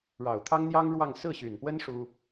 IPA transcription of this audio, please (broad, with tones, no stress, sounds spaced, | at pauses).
ɻ ɑ˨˩ ʊ̯ t̪ʰ ɑ˥ ŋ n̪ j ɑ˥ ŋ ɻ w ɑ˥˧ ŋ s ɹ̩˥˩ ɕ y˨˩ n p w ə˥ n ʂ u˥